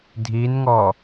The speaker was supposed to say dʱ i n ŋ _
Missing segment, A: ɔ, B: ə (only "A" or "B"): A